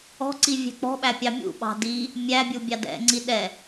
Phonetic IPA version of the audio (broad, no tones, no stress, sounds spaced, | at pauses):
ɔ̤ ǀ i vʲ ɛ̤ k͡p ɔ̤ ɓ æ pʲ ɑ mʲ ṵ ɓ ɑ̤ d i | mʲ æ bʲ u bʲ ɑ d ɛ̰ ŋ͡ǀ i ɗ ɛ